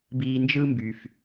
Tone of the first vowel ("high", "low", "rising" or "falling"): high